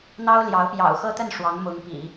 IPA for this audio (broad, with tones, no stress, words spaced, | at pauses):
n̪ɑ˥ʊ̯ljɑ˧˥ʊ̯pjɑ̰˨˩ʊ̯ xɤ˥t̪ə˥˩n ʂwɑ˧˥ŋmʊ˧˥ŋpḭ˨˩˦